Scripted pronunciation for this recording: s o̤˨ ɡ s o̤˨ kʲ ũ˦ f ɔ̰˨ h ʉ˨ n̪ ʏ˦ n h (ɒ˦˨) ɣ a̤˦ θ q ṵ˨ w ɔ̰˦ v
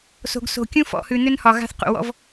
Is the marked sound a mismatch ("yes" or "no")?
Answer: yes